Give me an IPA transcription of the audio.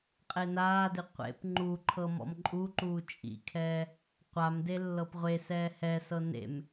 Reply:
qʼ e n aː d e qʷ ḛ p ŋ͡ǃ u ǃʰ ɤ m ɔ̰ m ǃʼ u ǃ uː t͡ʃʼ ḭ kʰ ɛː | qʷ a m d e lː ɤ p ʁʷ e s ɛː h ɛ s ɤ n ḛ m

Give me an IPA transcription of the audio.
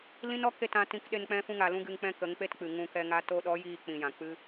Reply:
l ĩ˦ n ɔ˦ k e˦˨ t ã˧ t ĩ˧ k ɗ e˧ n k͡p ɛ̃˦ f ũ˦ ŋ a˨ l ũ˦ ɡ ɨ˧ ŋ k͡p ɛ̃˦ k ə˨˦ ŋ k͡p e˦ t k͡p ɨ˨ ŋ ũ˧ k ɛ˧ ŋ a˦ t o˧ ɗ ɔ˨˦ j iː˧ k͡p ĩ˨ j ã˨ k͡p ɨ˦

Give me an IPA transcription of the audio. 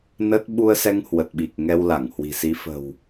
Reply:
n ə˦˥ t̚ ɓ u˧ ə̯ s ɛ˧ ŋ h w ə˨˩ t̚ ɓ i˨˩ k̚ ŋ ɛ˧ w l a˧˩ ŋ h w i̤˨˩ s i˨˦ f ə̤˨˩ w

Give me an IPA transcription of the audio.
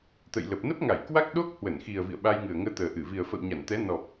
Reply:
t̪ ə̰˧˨ j l ə˨˩ p̚ n ə˦˥ p̚ ŋ a˧˩ j k w a˦˥ k̚ ɗ o˦˥ k̚ h w ə˧˩ n x i˨˩ ə̯ v ḭ˧˨ ə̯ ɓ a˧ j ŋ ɨ˨˩ ə̯ ŋ əː˧ t̪ əː˨˩ ʔ ɨ˧˩ v i˨˩ ə̯ f ə̰˧˨ w ɲ a˧˩ n t̪ ɛ˨˦ n ɔ˨˩ p̚

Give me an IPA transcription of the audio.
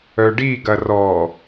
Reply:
œ ɖ i ɡ ɐ r ɔ

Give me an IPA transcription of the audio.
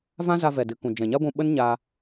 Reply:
v ã˦ z a˧ v ɛ˨ d ɨ˨ k ũ˨ d͡ʒ ɛ̃˨ ɲ a˦ ɡʷ ũ˧ ɓ ə˦ n ɲ a˧

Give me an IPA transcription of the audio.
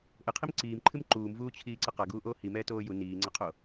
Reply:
ʔ ɘ qʰ i m ǀ iː m ǃʰ ɨ m ǃ uː m v uː t͡ɕʰ iː ǀ ɐ q a ɡ uː ʔ oː h i m ɛː t oː j u n iː ŋ͡ǀ ɐ qʰ o

